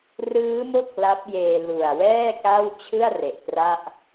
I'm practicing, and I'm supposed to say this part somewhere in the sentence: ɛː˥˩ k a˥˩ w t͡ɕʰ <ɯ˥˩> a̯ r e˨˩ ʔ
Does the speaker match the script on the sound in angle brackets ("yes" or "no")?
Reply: yes